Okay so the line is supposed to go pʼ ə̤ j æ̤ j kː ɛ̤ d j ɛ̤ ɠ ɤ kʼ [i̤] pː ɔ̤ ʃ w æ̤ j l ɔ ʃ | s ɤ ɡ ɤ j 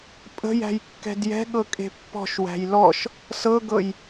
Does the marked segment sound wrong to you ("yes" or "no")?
yes